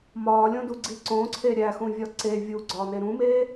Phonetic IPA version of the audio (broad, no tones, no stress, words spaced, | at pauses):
mɒːlʲõduɡ͡ǀi ǀõːǀʰe ɾʲæxũvʲɒ ǀe vʲuɡ͡ǀɒːne ɾũmeː